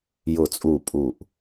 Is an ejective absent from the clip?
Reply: no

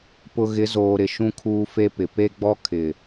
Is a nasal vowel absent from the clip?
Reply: no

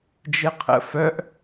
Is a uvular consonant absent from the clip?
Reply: no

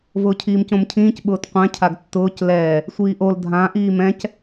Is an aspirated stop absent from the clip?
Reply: no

